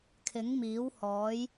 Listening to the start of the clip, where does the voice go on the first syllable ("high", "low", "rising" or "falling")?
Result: rising